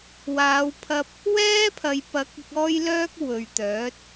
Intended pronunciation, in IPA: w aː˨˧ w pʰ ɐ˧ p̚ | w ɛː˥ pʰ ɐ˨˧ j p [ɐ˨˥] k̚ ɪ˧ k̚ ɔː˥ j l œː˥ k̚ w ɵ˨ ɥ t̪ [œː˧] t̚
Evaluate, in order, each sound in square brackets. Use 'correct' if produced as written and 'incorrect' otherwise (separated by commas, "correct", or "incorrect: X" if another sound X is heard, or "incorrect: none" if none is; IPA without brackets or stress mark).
correct, incorrect: œː˨˥